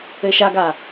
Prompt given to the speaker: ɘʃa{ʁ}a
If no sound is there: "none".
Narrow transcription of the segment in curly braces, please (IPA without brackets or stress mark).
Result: ɡ